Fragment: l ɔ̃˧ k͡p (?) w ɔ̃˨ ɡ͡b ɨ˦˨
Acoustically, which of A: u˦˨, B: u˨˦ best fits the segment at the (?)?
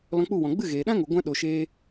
A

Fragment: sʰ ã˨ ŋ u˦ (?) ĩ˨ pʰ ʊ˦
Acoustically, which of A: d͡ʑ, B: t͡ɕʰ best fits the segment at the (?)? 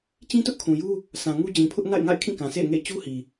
A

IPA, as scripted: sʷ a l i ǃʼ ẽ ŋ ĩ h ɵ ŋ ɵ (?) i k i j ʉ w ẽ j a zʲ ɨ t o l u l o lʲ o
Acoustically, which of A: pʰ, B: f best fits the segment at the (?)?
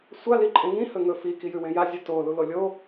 B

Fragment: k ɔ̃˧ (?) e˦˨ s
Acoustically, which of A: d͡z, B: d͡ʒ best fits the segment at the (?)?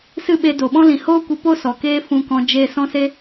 B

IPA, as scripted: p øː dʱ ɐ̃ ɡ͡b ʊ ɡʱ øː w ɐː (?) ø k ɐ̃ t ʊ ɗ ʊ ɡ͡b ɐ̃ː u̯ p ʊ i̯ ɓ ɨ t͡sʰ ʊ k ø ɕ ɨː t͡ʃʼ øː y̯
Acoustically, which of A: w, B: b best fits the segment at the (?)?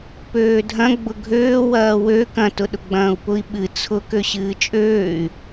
A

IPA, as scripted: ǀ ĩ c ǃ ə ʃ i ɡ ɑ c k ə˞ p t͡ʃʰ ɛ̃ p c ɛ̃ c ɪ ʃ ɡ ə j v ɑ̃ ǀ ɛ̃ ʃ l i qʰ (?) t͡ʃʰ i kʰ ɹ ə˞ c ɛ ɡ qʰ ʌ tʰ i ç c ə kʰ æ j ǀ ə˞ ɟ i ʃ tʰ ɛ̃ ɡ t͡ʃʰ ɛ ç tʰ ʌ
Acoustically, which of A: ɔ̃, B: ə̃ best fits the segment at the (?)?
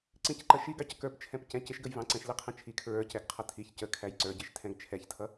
B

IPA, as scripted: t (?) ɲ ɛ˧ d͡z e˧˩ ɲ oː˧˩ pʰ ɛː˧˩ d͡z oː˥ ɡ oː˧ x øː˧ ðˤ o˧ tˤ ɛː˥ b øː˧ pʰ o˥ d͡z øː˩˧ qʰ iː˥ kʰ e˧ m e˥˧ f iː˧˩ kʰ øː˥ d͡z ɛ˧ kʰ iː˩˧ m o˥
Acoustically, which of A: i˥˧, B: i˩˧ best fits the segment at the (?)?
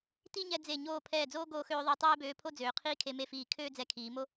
A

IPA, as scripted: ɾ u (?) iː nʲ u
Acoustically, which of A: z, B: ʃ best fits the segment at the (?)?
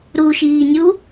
B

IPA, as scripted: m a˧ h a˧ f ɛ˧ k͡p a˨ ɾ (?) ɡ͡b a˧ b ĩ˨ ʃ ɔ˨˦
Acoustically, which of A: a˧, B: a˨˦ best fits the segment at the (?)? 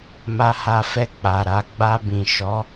B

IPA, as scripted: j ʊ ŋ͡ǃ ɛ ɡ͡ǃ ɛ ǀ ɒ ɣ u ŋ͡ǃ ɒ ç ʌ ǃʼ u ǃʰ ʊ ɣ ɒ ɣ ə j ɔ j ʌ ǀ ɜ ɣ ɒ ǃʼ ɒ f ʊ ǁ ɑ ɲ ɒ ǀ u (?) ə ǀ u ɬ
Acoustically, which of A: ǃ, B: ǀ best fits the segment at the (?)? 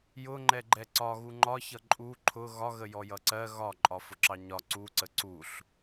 B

